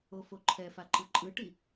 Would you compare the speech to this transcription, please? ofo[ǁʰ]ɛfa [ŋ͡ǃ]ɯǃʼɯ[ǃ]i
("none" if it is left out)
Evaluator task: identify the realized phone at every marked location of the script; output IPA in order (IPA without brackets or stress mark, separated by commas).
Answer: ǃʰ, ǃ, ʈ